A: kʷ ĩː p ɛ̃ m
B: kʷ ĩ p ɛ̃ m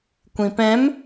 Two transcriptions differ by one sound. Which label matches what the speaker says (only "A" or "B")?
B